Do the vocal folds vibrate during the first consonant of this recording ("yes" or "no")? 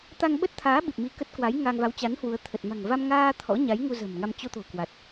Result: no